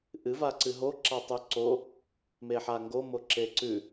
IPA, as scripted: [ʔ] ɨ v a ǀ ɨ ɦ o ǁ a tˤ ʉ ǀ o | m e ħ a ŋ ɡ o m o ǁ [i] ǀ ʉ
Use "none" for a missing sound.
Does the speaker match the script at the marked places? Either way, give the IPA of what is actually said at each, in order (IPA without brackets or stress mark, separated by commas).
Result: ʔ, e